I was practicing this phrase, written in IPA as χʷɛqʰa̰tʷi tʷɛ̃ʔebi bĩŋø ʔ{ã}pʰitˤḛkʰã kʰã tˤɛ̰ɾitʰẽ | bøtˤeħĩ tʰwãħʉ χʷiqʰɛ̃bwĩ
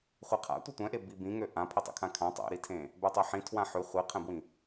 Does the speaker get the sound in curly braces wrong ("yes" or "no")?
no